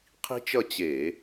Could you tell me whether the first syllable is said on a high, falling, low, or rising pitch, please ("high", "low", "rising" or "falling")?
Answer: high